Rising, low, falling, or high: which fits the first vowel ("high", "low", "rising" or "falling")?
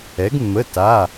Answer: rising